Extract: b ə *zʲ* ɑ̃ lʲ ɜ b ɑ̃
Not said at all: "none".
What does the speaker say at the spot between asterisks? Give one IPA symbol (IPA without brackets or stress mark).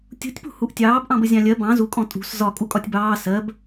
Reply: zʲ